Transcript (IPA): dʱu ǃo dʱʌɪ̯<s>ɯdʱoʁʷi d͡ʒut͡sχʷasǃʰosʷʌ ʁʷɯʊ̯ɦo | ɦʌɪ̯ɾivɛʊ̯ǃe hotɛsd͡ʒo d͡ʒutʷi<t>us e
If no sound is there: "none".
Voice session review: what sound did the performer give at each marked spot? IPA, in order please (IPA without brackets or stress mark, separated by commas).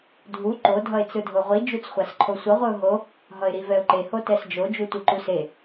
t͡s, ǃ